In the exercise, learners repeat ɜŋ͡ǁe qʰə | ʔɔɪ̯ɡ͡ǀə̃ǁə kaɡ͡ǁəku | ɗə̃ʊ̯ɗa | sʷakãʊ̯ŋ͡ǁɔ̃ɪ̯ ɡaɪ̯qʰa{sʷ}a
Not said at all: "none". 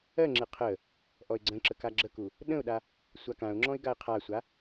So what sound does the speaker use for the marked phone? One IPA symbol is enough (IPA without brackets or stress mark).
sʷ